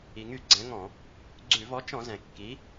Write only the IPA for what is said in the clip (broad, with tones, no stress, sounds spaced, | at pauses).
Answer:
i˩ ŋ y˧˩˧ ɡ͡ǀ ɛ̃˨˥ ŋ ɔ̃˧˩˧ | ɡ͡ǀ ʉ˧˩˧ v ɔ˨˥ t͡ʃ ɔ̃˧˩˧ z ɛ̃˩ kː i˨˥